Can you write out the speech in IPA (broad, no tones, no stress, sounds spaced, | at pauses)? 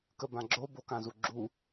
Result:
k ə b ã ɡ͡ǁ o b o k ã z u ɡ͡ǁ u